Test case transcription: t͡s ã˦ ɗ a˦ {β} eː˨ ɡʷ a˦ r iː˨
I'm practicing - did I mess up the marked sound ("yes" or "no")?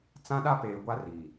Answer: yes